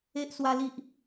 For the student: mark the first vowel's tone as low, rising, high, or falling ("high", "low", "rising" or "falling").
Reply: high